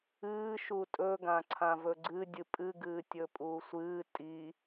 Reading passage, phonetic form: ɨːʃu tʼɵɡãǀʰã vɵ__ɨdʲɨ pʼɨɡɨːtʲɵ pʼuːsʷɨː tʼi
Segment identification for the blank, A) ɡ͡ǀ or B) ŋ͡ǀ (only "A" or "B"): A